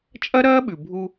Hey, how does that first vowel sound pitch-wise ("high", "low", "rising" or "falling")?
high